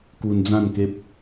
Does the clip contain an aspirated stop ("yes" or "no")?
no